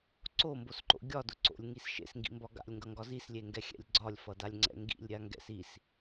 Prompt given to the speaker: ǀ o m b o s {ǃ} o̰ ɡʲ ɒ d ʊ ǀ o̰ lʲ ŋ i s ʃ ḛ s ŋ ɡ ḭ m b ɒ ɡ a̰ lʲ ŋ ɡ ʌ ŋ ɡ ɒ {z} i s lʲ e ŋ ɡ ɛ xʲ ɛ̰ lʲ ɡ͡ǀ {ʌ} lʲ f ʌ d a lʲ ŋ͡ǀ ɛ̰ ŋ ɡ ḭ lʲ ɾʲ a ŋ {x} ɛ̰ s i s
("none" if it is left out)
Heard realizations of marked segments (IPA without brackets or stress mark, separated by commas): ǃ, z, ɒ, ɡ